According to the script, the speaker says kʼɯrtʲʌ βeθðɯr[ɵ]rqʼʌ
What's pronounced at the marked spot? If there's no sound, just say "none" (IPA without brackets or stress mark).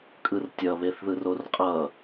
o